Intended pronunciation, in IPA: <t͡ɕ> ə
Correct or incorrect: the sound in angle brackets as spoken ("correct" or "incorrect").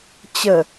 correct